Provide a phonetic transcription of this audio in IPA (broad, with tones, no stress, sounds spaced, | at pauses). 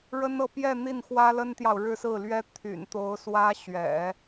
ɻ ə˥ n ɤ˥˧ p j ɛ˥˧ n̪ i˥˩ n x w ä˥ l ə˥ n t̪ j ɑ˨ ʊ̯ ɻ ɻ̩˥˧ s ɹ̩˥˩ l ɥ ɛ˥ t̪ʰ y̰˨˩ n t̪ o˧˥ ʊ̯ s w ä˥ ɕ ɥ ɛ̰˨˩˦